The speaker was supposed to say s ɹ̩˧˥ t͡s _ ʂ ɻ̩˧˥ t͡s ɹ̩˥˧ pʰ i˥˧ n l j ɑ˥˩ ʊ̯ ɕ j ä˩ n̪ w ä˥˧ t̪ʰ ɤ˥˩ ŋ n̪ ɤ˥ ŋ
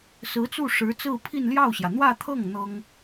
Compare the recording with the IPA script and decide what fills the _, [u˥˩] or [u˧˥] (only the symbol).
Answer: u˥˩